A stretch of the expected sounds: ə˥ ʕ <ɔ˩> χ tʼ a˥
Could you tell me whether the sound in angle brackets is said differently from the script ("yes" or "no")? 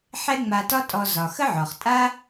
no